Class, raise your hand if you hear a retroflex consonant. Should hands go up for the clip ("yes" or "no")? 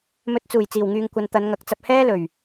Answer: no